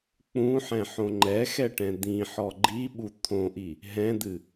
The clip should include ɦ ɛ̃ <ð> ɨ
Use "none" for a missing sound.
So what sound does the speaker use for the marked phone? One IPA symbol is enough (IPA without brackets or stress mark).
d̪